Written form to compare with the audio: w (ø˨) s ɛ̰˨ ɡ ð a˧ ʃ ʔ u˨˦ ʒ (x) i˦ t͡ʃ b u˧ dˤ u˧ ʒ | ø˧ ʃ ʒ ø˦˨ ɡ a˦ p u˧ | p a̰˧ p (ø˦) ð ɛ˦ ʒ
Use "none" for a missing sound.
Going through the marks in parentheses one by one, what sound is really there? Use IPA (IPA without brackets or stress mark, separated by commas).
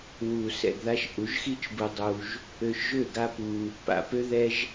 u˨, x, ø˦